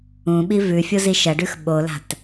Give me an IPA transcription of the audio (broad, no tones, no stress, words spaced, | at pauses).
ũɓi vʉfʲo ziʃɐɖʉx ɓola̤t